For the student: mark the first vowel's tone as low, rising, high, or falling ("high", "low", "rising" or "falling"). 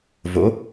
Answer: rising